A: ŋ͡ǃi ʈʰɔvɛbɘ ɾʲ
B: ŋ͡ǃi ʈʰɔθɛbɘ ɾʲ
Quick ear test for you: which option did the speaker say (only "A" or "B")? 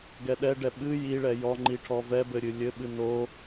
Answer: A